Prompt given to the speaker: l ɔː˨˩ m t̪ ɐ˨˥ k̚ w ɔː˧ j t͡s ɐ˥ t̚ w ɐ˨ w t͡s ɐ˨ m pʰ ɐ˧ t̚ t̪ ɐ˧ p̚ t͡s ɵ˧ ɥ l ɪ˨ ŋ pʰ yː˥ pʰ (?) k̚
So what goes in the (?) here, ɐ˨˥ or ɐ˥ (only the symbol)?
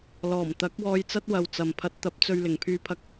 ɐ˥